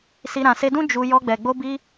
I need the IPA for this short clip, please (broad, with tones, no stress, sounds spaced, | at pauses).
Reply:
s i˧ ɾ ã˨ s e˧ d ũ˦ d͡ʒ u˧ j ɔ˧ ɡ͡b ɛ˨ ɡ͡b o˧ b i˧